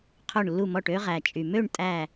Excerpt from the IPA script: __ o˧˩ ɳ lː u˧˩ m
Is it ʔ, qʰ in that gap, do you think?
qʰ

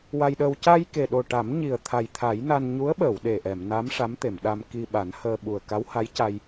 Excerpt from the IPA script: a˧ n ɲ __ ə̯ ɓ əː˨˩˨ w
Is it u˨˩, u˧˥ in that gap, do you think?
u˧˥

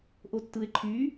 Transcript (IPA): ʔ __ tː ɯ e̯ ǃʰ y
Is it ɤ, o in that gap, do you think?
o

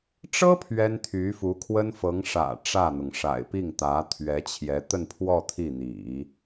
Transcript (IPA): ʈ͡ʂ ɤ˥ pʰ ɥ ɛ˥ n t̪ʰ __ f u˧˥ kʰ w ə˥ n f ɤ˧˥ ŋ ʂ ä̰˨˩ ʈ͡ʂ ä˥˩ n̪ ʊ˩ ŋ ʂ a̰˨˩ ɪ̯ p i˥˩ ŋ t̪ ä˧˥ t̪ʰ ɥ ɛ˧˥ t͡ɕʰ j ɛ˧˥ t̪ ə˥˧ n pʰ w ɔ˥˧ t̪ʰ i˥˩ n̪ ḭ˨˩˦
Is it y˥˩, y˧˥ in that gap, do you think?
y˧˥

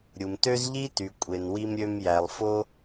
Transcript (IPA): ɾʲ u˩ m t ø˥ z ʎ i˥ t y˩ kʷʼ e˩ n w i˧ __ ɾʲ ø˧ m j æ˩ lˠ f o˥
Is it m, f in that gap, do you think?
m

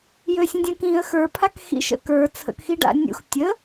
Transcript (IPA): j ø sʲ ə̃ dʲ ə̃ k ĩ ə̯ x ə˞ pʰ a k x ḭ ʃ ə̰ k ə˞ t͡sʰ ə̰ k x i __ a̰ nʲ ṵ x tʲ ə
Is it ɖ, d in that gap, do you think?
ɖ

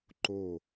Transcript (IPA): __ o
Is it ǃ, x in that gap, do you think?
ǃ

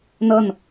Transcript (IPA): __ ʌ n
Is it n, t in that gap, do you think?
n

